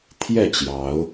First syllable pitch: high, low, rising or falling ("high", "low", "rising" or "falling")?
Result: falling